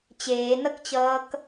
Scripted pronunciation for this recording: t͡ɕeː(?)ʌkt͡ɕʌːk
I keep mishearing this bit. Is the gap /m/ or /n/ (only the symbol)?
n